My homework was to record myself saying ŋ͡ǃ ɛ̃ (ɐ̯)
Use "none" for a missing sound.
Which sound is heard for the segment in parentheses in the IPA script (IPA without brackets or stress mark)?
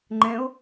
o̯